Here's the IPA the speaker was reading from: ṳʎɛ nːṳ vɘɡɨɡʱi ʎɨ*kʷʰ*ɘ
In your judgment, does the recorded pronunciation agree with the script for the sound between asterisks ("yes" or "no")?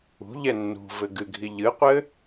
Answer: no